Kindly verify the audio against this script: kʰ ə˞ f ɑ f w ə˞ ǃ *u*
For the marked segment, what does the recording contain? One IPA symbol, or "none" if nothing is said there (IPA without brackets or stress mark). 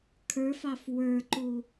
u